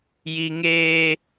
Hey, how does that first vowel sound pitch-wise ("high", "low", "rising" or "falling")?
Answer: high